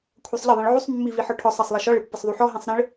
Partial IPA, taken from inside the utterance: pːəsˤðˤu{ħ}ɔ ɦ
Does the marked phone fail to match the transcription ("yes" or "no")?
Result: no